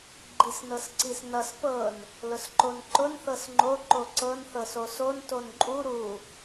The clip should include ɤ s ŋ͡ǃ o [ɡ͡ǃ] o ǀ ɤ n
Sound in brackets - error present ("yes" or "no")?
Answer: yes